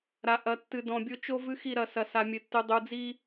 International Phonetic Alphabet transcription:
ɾ a˨ ʔ ɐ˨ tː ɨ˨ d ɔ̃˨ bʲ o˦ t͡ʃ o˦ v ɨ˦ x i˦˨ ɾ ɐ˦˨ s ɐ˨ s a˨ mʲ ɘ˨ tː ɨ˨ dˤ u˨ d͡z i˦

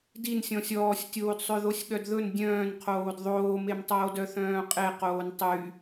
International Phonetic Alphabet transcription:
d i n sʲ ɔ̃ sʲ ɔː sʲ tʲ oː d sˤ ø ð o sʲ ɠ œ d ð ɵ n dʲ œ̃ː n qʰ oː d ðˤ oː m e m tˤ oː d œ θ œ̃ː qʼ e q oː n tˤ y

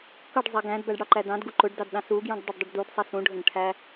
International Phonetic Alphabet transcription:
k ʌ ɖ zˤ æ ɡ æ̃ d b æ ɖ ɽ ɑ ǃ æ d ɑ̃ d ɡ u ǃ ʊ ɖ d ɑ d ɗ ɑ̃ s u ɡ j ũ ɖ dˤ ʊ ɖ dˤ u ɖ d u d sˤ ɪ s ũ ɖʱ ə̃ ɖ ʈʰ æ

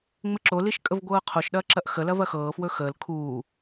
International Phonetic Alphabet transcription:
ŋ͡m ɪ ǁ o l i ʃ kʼ ə v ɡʷ ɤː qʰ o ʃ ɗ ɐː ǁ ɐ ʔ x ə l ɐ v ɐ x ɤː f w ɵ x əː l kʰ uː

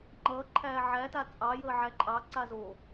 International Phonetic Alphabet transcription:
ŋ͡ǃ ʌː ǃʰ æː ʕ æ t a t͡sʼ ɑ j əː ʕ æ ǃʼ ɑ ǀ a z o

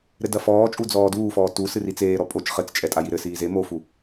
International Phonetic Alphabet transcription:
ɾ ɘ d ɐ f ɔː t͡ʃʼ u d͡z ɔː d uː f ɔː t u s ɨ r i t͡s eː ɾ ɔ pʼ o t͡ʃ χ ɘ t͡s t͡ʃʼ ɛ tʼ a j i ɾ ɘ s iː z e m o f u

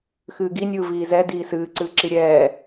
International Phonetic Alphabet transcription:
x ɨː ɡ i nʲ ɯː v iː z ɛ d iː s ɨː ǀ ɨː ǁ i ɾʲ ɛː

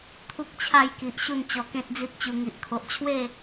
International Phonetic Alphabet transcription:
t̪ʰ u˦ k̚ t͡ɕʰ a˥˧ j k i˨ ʔ ɕ u˥˧ n t͡ɕ ɔ˧ k ẽ˦ t̚ d͡z i˦ t̚ t͡ɕ u˧ ŋ i˨ ʔ kʰ o˨ ʔ t͡ɕʰ w e˥˧

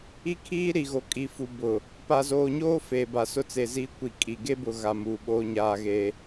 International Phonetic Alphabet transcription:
i˦ kʰ iː˦ ɾ i˨ ɣ o˨ kʼ i˨ f u˨ b ʊ˨ | p a˨ z oː˨ ɲ oː˦ f eː˨ b a˨ s ʊ˦ t͡s e˨ z iː˦ kʷ i˨ kʼ i˨ ɡ e˦ b ʊ˨ ɣ a˨ m uː˨ ɓ oː˦ ɲ aː˦ ɣ eː˦

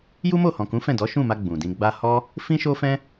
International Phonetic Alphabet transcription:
j u˦ m o˦˨ h ɔ̃˨ k ũ˨˦ f ɛ̃˦˨ d ɔ˨˦ ʃ ũ˦˨ m a˧ ɡ͡b ũ˨ d ĩ˧ ɡ͡b a˧ h ɔ˦ | f ĩ˦ ʃ o˦ f ɛ̃˦

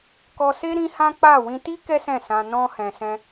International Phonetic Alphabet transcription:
k ɔ˧ s e˦ ɾ ĩ˦ h ã˦ k͡p a˦˨ w ĩ˧ t i˦ k ɛ˦ s ɛ̃˦˨ s ã˧ n ɔ̃˧ h ɛ̃˧ s ɛ̃˦

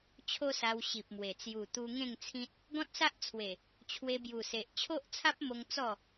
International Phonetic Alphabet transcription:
t͡ɕʰ o˦ s a˧ w ɕ i˨ p̚ m w e˨˩ t͡s j u˨˩ t̪ u˧ ŋ ẽ˥˧ ŋ t͡sʰ ĩ˦ t̚ | ɡ ɔ̃˦ t̚ s a˦ ʔ t͡sʰ w e˨˩ | t͡ɕʰ w e˧ b j u˨˩ s e˨ ʔ t͡ɕʰ o˦ ʔ t͡sʰ a˦ p̚ m o˧ ŋ t͡s ɔ˥˧

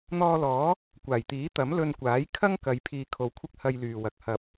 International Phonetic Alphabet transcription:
n̪ ɔː˧ l ɔː˨˥ | kʷ aː˨˩ j t̪ iː˨˥ t̪ ɐ˨˥ m l ɵ˧ n kʷ aː˨˥ j kʰ ɐ˥ ŋ k ɐ˨˧ j pʰ iː˨ kʰ o˨ w kʷʰ ɪ˧ k̚ h ɐ˧ j l yː˨ w ɐ˨ k̚ h ɐ˨ p̚

